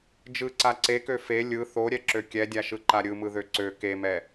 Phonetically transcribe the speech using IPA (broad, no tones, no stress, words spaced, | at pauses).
d͡ʒɯǀa ǀekø fe lʲɯ θoɾʲɛǁø kʲɛdʲaʃɯǃa ɾʲɯmɯðø ǀø kemɛ